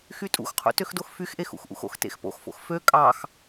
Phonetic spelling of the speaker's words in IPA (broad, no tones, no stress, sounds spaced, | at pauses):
x y tʼ ṵ x qʰ ṵ t ø x d o x f y x ʔ e x ṵ x ʔ ṵ x o̰ x t ḛ x p o̰ x f o̰ x f ø kʼ ɑ x